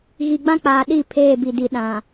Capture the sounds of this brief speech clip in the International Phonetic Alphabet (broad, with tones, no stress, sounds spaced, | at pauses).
ɣ i˨ ɡ͡b ã˦ k͡p aː˨ ɗ i˦˨ pʰ eː˦˨ b i˨ d i˨ ɗ ã˨